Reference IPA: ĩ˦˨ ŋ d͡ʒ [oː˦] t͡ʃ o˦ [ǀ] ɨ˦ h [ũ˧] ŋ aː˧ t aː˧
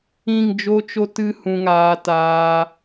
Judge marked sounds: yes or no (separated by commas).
no, no, yes